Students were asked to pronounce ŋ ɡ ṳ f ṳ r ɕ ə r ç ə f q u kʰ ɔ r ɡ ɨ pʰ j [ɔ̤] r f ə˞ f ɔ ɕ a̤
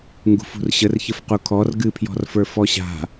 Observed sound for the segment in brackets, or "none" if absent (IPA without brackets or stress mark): ɔ̤